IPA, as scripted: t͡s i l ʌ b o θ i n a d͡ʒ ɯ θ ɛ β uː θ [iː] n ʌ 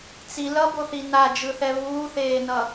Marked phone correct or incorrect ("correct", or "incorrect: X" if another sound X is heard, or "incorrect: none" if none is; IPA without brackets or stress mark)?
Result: incorrect: eː